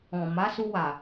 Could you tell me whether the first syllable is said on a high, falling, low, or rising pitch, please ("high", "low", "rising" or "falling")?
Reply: low